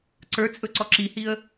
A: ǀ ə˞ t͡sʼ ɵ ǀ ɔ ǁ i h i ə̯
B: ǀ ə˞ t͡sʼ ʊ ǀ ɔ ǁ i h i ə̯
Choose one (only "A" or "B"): A